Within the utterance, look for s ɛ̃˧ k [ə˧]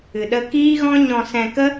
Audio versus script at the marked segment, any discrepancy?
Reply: yes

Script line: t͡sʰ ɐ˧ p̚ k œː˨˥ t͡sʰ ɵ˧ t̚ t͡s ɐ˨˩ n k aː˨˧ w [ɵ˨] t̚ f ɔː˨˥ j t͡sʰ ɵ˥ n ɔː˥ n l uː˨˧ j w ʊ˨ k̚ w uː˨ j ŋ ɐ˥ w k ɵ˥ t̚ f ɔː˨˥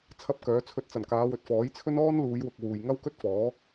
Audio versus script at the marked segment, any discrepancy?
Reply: no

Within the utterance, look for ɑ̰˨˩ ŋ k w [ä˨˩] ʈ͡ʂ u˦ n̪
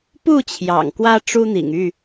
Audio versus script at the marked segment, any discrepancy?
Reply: yes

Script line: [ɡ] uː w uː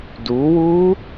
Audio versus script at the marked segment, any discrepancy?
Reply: yes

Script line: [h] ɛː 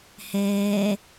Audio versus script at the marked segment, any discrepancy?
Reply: no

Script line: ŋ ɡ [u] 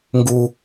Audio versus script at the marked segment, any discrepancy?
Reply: no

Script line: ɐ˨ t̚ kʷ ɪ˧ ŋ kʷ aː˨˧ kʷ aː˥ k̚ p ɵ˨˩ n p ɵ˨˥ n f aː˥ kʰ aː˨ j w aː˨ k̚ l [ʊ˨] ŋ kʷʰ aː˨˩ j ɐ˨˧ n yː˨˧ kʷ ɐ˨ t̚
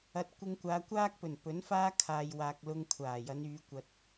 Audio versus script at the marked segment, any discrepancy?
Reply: yes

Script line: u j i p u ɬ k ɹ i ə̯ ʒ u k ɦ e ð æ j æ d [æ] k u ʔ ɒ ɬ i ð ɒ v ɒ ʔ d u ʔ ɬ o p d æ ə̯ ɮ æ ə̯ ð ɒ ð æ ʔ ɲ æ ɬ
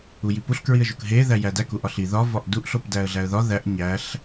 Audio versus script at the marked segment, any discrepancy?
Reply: no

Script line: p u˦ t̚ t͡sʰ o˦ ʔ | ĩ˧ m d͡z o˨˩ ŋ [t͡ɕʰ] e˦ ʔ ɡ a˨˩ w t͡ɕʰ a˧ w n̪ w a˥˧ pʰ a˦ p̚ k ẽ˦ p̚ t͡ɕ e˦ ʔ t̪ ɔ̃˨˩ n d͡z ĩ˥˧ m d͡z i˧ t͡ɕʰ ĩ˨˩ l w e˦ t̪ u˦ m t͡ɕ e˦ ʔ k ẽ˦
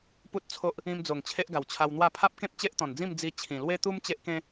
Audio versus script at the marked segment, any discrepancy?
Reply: no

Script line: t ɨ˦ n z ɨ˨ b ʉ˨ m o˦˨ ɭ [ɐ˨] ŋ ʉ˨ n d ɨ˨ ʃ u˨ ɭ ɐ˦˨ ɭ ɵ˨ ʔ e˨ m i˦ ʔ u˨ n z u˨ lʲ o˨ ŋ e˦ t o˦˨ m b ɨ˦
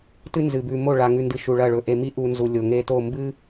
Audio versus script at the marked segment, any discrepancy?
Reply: yes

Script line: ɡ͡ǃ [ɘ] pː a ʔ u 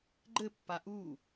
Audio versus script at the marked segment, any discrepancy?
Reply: no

